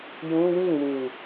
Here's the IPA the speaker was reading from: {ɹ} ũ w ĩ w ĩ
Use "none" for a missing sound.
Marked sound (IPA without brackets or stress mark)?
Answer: j